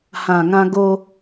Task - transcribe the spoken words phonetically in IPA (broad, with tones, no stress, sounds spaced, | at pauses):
h ã˨˩ ŋ ã˧ ɡ o˧